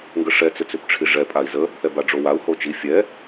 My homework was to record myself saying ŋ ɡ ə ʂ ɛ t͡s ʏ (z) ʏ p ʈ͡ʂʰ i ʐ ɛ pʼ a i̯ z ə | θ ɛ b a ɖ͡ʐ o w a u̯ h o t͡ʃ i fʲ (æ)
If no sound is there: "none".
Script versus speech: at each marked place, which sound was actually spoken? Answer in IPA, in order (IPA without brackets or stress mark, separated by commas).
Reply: t͡s, ɛ